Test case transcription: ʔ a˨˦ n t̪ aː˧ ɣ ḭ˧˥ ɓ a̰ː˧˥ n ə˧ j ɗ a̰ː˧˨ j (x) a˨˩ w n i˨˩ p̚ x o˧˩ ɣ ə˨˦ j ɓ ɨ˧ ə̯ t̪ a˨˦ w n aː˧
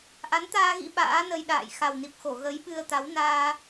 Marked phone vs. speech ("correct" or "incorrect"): correct